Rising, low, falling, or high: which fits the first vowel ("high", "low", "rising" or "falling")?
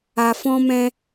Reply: low